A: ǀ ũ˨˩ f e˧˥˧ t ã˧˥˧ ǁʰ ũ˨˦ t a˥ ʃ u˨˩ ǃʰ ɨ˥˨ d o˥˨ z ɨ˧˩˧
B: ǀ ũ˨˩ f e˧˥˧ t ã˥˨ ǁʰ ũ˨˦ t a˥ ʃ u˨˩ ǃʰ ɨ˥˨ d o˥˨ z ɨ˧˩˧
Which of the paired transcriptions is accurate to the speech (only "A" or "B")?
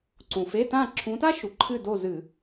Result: B